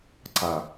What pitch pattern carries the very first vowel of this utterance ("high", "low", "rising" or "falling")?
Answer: low